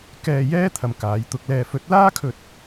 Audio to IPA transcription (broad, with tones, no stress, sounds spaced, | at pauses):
k ɛː˧ j ɛː˥ t̪ʰ ɐ˨ m k aː˨˥ j t̪ ʊ˧ k̚ l ɛː˧ f ɵ˨˥ t̚ l aː˥ kʰ ɵ˧ t̚